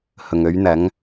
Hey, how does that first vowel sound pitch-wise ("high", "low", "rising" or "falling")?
low